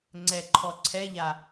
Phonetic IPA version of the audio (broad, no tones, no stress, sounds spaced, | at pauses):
ŋ͡ǀ ɛ ǃʰ ɔ ǀʰ ɛ ʎ a